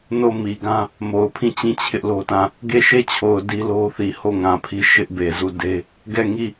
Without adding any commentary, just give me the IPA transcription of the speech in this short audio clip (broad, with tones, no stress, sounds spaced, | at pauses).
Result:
n o˦˨ m i˨ ɡ ã˦ | m o˨ ʊ̯ pʰ ĩ˦˨ t͡ɕ ĩ˦˨ t͡ɕʰ ɪ˦ ʔ l o˦ t ã˦˨ | ɡ e˦˨ ʃ e˦˨ t͡ɕʰ o˨ ʊ̯ d i˦ l o˦ θ i˨ h o˦˨ ŋ ã˨ pʰ i˦ ʃ ɪ˦ ʔ b e˨ z u˦˨ d e˦ | ɡ ɛ˦˨ ŋ i˦˨